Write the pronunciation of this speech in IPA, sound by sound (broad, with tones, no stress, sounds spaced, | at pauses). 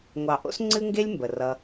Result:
ŋʷ ɑ˨ ʔ o̰˦ s ŋ͡ǀ ɨ˦ ŋ ɡ e˦ lʲ m b ə˨ r ʌ˧